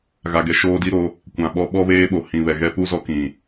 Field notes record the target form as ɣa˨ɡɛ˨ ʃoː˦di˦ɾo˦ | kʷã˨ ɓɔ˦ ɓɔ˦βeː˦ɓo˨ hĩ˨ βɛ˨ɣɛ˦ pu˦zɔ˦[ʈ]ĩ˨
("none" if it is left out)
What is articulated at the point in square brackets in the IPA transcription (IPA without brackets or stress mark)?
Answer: k